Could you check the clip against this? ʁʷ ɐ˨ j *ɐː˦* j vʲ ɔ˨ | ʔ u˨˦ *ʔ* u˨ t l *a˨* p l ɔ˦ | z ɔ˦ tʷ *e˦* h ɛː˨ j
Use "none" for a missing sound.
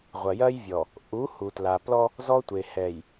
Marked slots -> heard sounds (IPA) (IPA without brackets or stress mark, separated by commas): ɐː˦, h, a˨, e˨